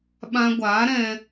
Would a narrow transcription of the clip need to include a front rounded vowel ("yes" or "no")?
no